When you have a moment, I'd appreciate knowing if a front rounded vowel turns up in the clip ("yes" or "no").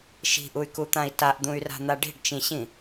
yes